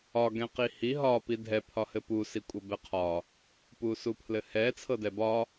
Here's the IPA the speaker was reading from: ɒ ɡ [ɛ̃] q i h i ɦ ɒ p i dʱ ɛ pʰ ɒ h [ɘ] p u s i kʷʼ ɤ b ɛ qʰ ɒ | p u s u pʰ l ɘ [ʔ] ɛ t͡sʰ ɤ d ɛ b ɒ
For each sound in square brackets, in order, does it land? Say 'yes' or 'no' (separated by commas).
yes, yes, no